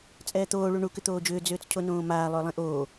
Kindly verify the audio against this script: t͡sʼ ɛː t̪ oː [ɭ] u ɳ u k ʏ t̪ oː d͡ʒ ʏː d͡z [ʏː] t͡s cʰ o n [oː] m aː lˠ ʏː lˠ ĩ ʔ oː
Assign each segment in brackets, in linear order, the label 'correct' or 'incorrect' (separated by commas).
correct, correct, incorrect